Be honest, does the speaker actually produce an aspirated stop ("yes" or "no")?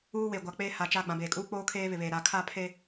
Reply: yes